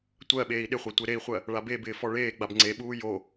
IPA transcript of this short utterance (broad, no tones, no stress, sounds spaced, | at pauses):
tʷ ɜ ɓ eː i̯ ɗ ɪ χʷ a tʷ e ɾ e i̯ χʷ ɜ | ɭ a b e b ɪː f ɔ ɭ eː ɡ͡b a b ŋ͡ǀ e ɓ uː j o